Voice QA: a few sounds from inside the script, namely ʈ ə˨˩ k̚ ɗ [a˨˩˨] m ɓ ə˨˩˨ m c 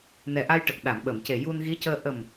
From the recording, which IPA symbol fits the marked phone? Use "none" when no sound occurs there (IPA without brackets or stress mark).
a˨˩˨